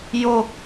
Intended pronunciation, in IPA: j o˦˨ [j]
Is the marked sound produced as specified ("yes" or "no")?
no